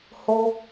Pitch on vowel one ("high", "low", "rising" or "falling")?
high